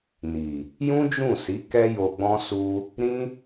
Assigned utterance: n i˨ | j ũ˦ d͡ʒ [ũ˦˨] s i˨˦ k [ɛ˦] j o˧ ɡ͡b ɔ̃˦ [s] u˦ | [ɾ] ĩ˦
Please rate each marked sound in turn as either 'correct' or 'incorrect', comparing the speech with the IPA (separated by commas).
correct, correct, correct, correct